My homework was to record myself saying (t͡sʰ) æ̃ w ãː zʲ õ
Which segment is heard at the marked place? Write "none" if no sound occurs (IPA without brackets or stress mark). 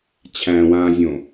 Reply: t͡ɕʰ